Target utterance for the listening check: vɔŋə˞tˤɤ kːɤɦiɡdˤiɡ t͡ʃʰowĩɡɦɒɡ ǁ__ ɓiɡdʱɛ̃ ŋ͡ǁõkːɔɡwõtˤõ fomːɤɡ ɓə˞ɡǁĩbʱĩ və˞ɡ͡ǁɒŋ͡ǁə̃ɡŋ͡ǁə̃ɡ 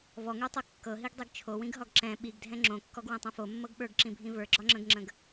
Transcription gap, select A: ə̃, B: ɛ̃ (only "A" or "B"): B